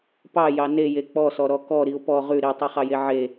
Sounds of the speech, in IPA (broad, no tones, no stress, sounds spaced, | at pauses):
p ɑ j ɑ n e j e k͡p ɔ s ɔ ɾ ɔ k ɔ ɾ i ʊ̯ p ɔ ʁ ʉ ɾ i tˤ i χ ɑ j e ʕ e